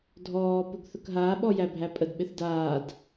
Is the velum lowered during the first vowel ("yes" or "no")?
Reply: no